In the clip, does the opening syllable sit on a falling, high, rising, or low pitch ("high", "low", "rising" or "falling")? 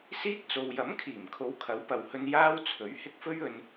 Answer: high